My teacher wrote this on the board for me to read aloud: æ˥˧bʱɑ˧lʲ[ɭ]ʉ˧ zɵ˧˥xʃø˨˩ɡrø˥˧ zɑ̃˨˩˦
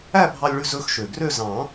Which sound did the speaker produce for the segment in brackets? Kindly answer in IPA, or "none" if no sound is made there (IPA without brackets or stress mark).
ɭ